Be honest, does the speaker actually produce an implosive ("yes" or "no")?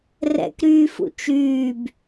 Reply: no